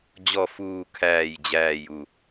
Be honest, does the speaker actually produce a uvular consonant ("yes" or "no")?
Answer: no